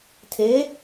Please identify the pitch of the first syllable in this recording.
rising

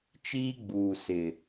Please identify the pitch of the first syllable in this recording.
high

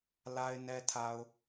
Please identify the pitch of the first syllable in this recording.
low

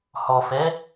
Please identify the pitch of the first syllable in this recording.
low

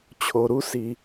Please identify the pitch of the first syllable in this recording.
low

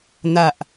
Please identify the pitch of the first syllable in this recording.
low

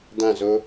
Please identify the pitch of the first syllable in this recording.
falling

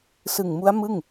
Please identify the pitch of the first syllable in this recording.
low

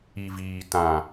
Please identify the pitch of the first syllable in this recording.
low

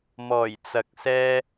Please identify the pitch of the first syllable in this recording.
low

